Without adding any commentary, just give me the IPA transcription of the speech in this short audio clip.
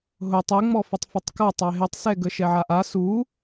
ɦ ʊ tˤ ɪ ŋ͡m ɔ f ɪ tˤ f ɪ tˤ k a tˤ ɛ ɦ ɪ tˤ s ɛ ɡ ə ʃ ɛ ʕ a ʔ a s u

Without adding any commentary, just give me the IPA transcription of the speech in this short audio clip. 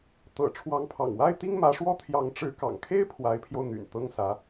t̪ ɤ̰˨˩ ʈ͡ʂʰ w ɑ˧˥ ŋ pʰ ɑ̰˨˩ ŋ w a˥ ɪ̯ t̪ i˥ ŋ m ä˧˥ ʂ w ɔ˥ t̪ʰ j ɑ˧˥ ŋ ʈ͡ʂ ɻ̩˧˥ k ɑ̰˨˩ ŋ kʰ e˥ ɪ̯ pʰ w a˧˥ ɪ̯ pʰ j o˧ ʊ̯ n̪ y̰˨˩ n t̪ ɤ˥ ŋ s ä˧˥

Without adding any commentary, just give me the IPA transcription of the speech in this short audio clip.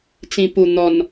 t͡s ĩ˨˩ p u˨˩ n̪ ɔ˨˩ n

